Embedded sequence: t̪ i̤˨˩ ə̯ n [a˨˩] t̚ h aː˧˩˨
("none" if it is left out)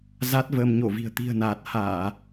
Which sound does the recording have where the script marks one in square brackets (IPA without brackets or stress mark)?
aː˨˩